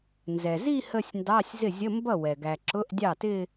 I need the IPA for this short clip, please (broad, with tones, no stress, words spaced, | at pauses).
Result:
nzɛ˩zi˥˧ hə˥˧sʲndɑ˧˥˧sʲ zɪ˥˩zʲə˧˥˧ mbʌ˥˩ wɛ˩ ɡæ˩ǁʊ˧˥˧ʔ dʲɑ˥˩tɪ˥˧